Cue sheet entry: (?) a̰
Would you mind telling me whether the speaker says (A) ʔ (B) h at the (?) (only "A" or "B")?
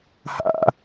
B